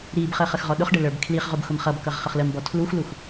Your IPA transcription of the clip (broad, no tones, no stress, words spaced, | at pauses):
ɾibχə χəxʁɔɗʊχɖə lə˞bkʰliχʁʊb xʊmχʌbkʌʁ χʌχləmbɔ tʰluxlux